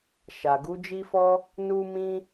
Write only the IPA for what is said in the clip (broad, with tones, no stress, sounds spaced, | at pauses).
ʃ a˨ ɡ u˨˦ d͡ʒ i˦ f ɔ˦ | n u˦ m ĩ˦